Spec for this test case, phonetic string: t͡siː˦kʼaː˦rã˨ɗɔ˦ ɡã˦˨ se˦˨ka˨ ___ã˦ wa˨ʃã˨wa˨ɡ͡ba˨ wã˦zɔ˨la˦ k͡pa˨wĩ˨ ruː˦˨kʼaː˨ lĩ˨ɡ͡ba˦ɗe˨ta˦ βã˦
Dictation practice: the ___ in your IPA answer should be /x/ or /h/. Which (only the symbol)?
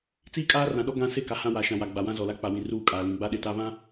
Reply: h